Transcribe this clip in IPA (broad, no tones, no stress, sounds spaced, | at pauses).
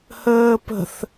h əː p ə̤ θ